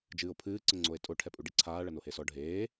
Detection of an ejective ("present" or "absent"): present